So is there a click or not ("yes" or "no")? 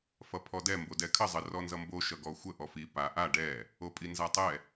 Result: no